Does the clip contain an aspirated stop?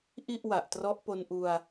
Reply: no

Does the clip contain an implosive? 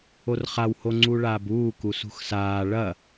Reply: no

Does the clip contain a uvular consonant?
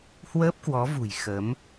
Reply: no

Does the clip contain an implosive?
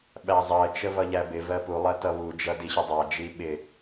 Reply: yes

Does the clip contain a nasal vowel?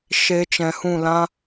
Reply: yes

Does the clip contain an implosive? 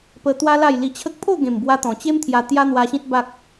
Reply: no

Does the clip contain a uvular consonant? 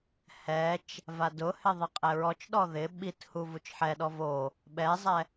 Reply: yes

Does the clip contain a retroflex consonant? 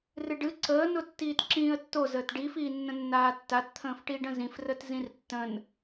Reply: yes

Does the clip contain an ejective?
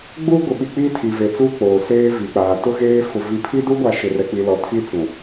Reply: no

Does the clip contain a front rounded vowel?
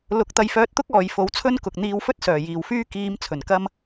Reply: yes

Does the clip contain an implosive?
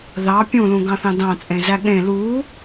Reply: yes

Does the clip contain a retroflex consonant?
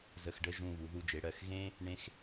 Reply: yes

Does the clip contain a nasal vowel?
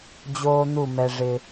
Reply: no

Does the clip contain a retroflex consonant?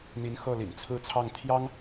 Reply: no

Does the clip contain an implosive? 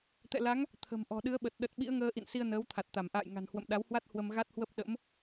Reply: yes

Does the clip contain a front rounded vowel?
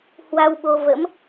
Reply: no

